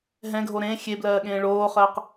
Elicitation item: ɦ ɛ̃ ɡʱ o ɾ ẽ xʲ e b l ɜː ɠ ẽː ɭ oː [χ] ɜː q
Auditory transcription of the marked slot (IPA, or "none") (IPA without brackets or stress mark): χ